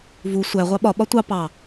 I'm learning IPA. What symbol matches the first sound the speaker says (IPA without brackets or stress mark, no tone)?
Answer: v